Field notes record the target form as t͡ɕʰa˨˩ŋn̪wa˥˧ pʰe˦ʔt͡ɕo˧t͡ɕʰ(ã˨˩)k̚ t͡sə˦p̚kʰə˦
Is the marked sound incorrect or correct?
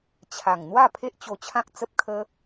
incorrect